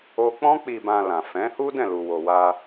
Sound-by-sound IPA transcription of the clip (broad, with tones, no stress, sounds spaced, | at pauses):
o˦ k͡p ɔ̃˦ k͡p i˧ b ã˧ l ã˨ f ɛ̃˨˦ h u˦ d ɛ̃˦˨ l u˧ w o˧ w a˦